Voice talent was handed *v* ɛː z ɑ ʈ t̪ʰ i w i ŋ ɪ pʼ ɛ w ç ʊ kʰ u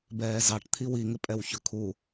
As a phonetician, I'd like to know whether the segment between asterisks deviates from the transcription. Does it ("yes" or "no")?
yes